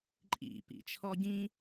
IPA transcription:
ǃʼ ḭ p ḭ t͡ʃʰ ɔ ɟ ĩ

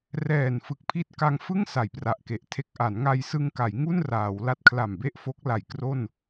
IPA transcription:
r ɛː˨˩ n f ɯ˨˩ k̚ pʰ i˦˥ t̚ k a˧ ŋ f ɯ˥˩ ŋ s a˨˩ j p r a˨˩ ʔ k e˨˩ ʔ tʰ e˦˥ k̚ ʔ a˩˦ n ŋ a˧ j s ɯ˧ ŋ k a˩˦ j ŋ u˥˩ n r aː˩˦ w l a˦˥ t̚ kʰ l a˨˩ m b e˥˩ ʔ f o˦˥ k̚ l a˨˩ j k r o˥˩ n

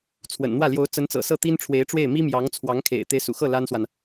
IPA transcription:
t͡sʰ w ə̰˨˩ n n̪ w ä˥˩ l j o˧˥ ʊ̯ t͡s ə˧˥ n t͡s ɤ̰˨˩ s ɤ˥˩ t̪ i˥ n ʈ͡ʂʰ w e˧˥ ɪ̯ ʈ͡ʂ w e˥˩ ɪ̯ m i˥ m j ɑ˧˥ ŋ t͡sʰ w ɑ˧˥ ŋ kʰ ḛ˨˩ ɪ̯ t̪ e˧˥ ɪ̯ s ṵ˨˩ x ɤ˥˩ l a˥ n s w a˨ n

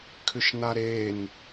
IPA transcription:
kʰ ʏ ʃ n a ɾ e n

